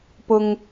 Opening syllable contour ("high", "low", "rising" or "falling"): high